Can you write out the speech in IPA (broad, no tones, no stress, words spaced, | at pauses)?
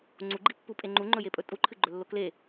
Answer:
ŋ͡ǀuɡ͡ǃipːupʼe ŋ͡ǃuŋ͡ǃɵjepʼɵ tʼuǃʰɨɡ͡ǃɵlːo kle